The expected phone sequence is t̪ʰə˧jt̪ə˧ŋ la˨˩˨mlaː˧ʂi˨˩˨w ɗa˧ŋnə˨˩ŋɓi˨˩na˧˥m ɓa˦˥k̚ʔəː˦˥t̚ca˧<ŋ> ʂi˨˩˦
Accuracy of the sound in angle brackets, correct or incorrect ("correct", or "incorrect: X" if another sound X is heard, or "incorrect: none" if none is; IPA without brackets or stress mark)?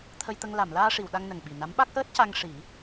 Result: correct